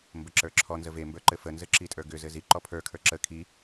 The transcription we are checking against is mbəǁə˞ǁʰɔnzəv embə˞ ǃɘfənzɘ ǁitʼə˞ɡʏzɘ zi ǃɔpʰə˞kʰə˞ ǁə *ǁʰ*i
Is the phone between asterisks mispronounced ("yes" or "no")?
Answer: yes